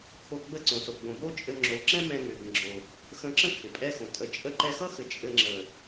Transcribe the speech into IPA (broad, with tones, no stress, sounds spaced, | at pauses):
kʰ o˧ ɡ͡b ə˦˨ ǀ õ˨ s o˨ ɡ͡b õ˨ b o˦ t͡ʃʼ ɘ˧ ŋ͡ǁ o˨˦ ǁ ɛ̃˦ m ɛ̃˧ ŋ ʏ˨ ɡ ə̃˨ ɡ͡ǁ o˨ | x ə̃˧ ǁ ə̃˦ kʰ ɪ˨ pʼ ɛ˦ x õ˨ tʼ ə˧ t͡ʃʼ ə˦ ǃ ɛ˧ x ʌ˦ x ɘ˨ t͡ʃʼ ɘ˧ ŋ͡ǁ ə˨